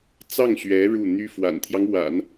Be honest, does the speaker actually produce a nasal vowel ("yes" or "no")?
no